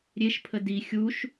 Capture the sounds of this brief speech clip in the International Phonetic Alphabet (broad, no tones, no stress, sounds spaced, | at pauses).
ɾʲ e ʃ pʰ ə d i xʲ u ʃ